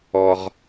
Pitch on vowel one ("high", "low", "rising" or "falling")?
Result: low